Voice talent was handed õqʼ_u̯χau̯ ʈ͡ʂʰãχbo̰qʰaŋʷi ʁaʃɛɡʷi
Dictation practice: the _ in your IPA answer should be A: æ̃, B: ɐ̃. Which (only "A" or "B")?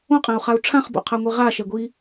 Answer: A